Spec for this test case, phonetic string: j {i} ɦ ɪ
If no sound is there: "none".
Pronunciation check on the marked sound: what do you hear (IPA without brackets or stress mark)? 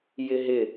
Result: ɪ